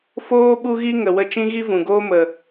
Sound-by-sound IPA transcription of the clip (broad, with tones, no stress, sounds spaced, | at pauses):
f oː˦ ɓ u˦ ɣ i˦ ŋ ə˨ w ə˧ t͡ʃ ĩ˦ ɣ i˦ v ũ˨ ɡ oː˦ m ə˨